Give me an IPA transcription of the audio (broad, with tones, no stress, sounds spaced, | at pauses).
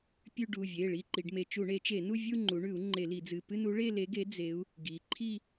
pʲ ʉ˥˧ ɖ u˩˧˩ vʲ e˩˧˩ ɭ i˥˧ ǃ i˩˧ ɖ m e˧ t͡ʃ u˧˩˧ ɳ e˩˧ t͡ʃ e˧˩˧ n u˥˧ vʲ u˥˧ ŋ͡ǃ u˩˧ ɳ ʉ˧˩˧ u̯ ŋ͡ǃ e˧˩˧ l i˧˩˧ d͡z ɨ˩˧˩ p ɨ˥˧ n u˨˥ ɭ e˥˧ l e˨˥ ɡ e˨˥ d͡z e˨˥ u̯ | ɡ i˩˧ ǃʰ i˥˧